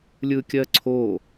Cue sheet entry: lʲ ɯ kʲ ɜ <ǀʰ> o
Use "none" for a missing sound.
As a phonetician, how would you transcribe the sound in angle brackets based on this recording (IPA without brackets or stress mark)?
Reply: ǀʰ